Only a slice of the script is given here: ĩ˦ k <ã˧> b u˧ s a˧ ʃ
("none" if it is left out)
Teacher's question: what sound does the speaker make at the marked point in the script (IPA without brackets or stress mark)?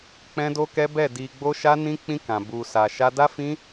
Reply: ã˧